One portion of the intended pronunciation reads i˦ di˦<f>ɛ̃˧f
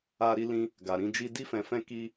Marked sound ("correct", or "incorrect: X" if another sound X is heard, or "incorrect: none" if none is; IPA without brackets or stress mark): correct